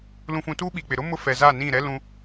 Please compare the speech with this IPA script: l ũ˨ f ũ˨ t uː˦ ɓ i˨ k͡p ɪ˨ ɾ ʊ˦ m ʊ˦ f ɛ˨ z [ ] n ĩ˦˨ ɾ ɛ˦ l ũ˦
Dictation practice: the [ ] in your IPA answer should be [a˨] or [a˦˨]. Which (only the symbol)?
a˦˨